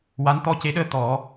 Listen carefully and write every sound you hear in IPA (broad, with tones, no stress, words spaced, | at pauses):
wa˧˥nt̪ɔ˧ce˧˥ɗəː˧˥ t̪ɔ˨˩˦